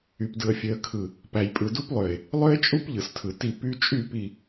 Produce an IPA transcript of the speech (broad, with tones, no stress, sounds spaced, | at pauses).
y˨ p d ɯ˨ ə̯ fʲ ø˨ ə̯ kʰ ɯ˨ | p æ˨ j pʼ ɯ˨ d u˦ p lˠ ø˨ ɪ̯ | lˠ ø˦ ɪ̯ t͡ʃʼ u˦ p ʎ ɯ˨ s tʰ ɯ˨ t i˦˨ p y˦ t͡ʃʼ y˦˨ p i˨